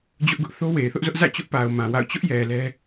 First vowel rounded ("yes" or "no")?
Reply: yes